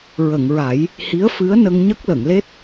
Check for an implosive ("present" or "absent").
absent